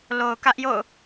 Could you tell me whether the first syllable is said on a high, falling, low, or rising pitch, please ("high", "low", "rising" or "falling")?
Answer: low